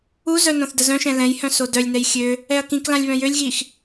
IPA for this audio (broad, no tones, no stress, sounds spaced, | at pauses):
u z œ n õ θ d ə z œ̃ ʃ ɛ̃ l ɛ̃ j h œ̃ s o d œ lʲ n ɛ j xʲ ø | ɛ ɐ̯ k ĩ k l ã lʲ β œ̃ j ø lʲ ɣ i x